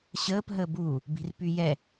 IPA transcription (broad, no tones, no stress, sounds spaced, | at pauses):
ɕ əː p ɦ əː b uː | b i̤ r p y j ɛ